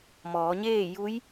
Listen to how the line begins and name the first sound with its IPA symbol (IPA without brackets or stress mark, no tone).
m